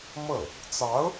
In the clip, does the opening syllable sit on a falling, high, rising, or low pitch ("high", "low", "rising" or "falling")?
falling